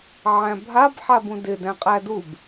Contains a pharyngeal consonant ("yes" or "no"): yes